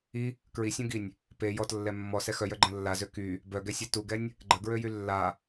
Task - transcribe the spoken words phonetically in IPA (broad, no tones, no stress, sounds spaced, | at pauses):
i | k ɹ i sʲ ũ ɡ i nʲ | p e j ɔ t lː ɛ mː ɔ s ɛ x œ j œ ɡ͡ǃ ə̃ lː a z ø k y | b œ ɡ ɛ sʲ ɛ t u ɡ ɛ nʲ | ɡ͡ǃ ə ɡ ɹ ø j y lː a